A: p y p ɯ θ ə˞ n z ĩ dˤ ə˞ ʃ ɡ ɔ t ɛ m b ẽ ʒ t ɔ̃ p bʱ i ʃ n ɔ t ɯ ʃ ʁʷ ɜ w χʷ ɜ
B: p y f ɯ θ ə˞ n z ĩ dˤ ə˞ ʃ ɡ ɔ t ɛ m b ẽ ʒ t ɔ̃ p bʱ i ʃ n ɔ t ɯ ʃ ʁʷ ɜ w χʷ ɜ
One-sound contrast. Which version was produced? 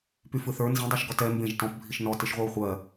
B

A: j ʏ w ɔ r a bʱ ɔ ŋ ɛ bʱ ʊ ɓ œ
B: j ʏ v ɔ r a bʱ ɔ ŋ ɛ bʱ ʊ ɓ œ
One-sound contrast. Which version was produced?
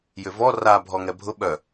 B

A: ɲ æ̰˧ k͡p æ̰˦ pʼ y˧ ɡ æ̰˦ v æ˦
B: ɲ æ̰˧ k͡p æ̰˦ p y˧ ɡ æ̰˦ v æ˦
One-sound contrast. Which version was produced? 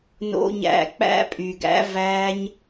A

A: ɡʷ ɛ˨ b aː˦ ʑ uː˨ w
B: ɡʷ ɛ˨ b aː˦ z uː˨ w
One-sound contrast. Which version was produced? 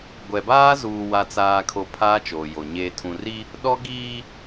B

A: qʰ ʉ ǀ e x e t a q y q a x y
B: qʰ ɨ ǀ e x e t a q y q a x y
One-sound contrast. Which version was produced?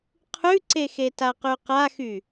A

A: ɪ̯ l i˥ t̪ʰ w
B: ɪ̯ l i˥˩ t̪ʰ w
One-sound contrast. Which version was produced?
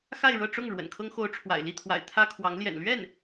B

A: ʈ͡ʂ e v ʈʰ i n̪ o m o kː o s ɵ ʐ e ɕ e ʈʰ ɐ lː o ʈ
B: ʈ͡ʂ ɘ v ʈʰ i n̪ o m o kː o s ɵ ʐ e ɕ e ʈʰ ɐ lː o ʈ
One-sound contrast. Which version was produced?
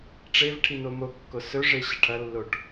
A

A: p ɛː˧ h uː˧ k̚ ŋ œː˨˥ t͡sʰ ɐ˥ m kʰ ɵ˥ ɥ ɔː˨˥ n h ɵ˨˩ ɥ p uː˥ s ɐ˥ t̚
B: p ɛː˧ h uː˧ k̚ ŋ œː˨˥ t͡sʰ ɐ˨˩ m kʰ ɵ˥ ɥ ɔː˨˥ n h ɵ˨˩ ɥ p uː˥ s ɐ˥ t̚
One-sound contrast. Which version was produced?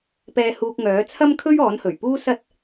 A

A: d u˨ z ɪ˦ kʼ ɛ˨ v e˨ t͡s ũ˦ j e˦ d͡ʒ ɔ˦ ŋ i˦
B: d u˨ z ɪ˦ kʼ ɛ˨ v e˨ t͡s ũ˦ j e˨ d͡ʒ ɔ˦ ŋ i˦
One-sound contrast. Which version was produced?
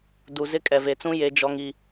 A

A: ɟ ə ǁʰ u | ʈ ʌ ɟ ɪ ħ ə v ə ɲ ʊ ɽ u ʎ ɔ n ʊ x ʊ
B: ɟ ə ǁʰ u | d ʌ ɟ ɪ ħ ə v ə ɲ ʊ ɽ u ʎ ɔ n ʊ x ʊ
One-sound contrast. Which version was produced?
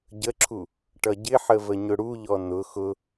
A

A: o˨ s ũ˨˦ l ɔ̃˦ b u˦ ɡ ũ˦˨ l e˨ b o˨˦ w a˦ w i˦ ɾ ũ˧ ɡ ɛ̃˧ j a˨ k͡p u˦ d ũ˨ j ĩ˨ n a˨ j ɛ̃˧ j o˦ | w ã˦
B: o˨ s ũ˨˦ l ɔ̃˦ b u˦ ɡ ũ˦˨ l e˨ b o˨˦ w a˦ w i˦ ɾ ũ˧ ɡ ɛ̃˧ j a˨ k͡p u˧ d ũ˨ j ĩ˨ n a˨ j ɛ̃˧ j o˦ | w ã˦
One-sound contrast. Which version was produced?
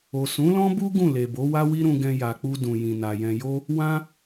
B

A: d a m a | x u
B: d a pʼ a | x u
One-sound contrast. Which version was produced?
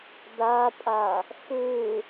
B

